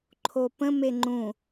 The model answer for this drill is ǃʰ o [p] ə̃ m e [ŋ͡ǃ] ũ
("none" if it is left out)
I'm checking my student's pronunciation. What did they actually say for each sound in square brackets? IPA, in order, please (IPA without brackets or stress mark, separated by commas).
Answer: p, ŋ͡ǃ